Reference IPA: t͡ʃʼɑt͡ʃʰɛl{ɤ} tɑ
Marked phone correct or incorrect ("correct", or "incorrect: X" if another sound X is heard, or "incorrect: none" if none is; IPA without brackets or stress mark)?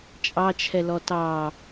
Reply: incorrect: ɔ